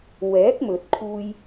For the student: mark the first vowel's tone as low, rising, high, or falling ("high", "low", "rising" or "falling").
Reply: rising